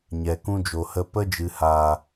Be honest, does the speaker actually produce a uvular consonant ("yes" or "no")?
no